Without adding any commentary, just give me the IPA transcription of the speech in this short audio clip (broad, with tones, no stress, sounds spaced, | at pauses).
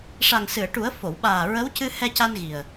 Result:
ʂ a˨˩ ŋ s ɨ˨˩˨ ə̯ ʈ u˨˩˦ ə̯ f o˨˩˨ w ɓ aː˨˩ ɹ ə˧˥ w c ɨ˧ h ɛ˧ c a˧ n ɣ i˨˩ ə̯